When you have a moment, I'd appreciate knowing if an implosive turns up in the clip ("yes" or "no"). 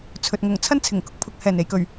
no